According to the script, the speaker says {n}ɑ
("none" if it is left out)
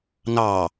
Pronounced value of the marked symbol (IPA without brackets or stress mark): n